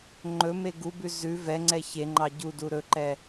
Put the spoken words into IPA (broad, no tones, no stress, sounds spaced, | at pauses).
ŋ͡ǃ ɵ m e ɡ u b ʉ z ʉ v ɛ ŋ͡ǀ ɛ ç e ŋ͡ǃ ɑ ɟ u d u ɾ ɵ ǃ ɛ